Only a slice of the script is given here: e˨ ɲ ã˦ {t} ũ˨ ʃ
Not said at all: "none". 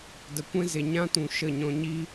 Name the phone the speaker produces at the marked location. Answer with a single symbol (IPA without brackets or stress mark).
t